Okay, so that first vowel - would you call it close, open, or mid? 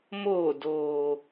mid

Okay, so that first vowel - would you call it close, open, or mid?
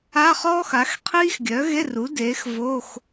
open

